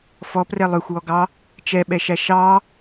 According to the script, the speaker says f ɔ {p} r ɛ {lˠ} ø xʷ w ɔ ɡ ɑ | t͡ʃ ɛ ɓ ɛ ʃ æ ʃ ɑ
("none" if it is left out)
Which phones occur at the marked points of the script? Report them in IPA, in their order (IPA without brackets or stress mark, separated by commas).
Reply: p, lˠ